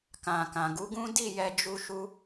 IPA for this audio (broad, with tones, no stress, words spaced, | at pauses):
kã˨kã˨ɡu˨˦ɡũ˦ di˦˨jɛ˧d͡ʒu˧ʃu˧